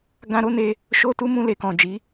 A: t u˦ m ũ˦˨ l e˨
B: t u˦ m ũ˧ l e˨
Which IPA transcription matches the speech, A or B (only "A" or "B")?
B